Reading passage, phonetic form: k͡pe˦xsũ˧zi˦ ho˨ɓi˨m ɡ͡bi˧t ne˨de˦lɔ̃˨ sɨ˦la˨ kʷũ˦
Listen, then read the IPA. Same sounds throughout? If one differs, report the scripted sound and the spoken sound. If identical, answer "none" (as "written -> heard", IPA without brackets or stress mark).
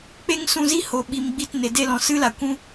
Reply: x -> ŋ